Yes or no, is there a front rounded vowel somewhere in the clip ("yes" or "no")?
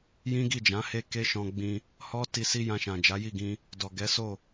no